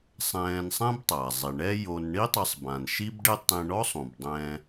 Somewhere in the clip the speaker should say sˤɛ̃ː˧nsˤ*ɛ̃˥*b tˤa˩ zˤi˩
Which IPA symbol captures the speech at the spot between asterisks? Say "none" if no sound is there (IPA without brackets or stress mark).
ɛ̃˥